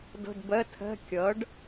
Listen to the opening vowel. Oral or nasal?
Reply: oral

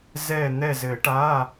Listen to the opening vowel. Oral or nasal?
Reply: oral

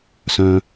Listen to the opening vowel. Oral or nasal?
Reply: nasal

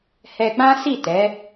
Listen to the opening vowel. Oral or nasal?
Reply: oral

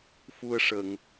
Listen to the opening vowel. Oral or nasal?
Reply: oral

